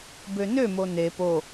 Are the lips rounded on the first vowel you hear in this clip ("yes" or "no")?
yes